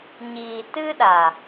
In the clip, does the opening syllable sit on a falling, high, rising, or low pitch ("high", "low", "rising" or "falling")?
low